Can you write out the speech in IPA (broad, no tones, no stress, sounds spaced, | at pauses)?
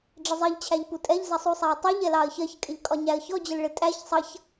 ɖ͡ʐ ɪ zˤ i ʎ t͡ɕʰ æ ʎ p u tʼ ɛ ʎ z ʌ sˤ u sˤ æ ə̯ tˤ i ʎ ɛ l ɑ ə̯ ç ɜ ç kʼ ɪ ʎ kʼ ɒ ɲ æ ə̯ ç ɔ d͡ʑ ə l ɭ ɪ tʼ æ ç sˤ ʌ ç